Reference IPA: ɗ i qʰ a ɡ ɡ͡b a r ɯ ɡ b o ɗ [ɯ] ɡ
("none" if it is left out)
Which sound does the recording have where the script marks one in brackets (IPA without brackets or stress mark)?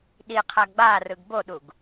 u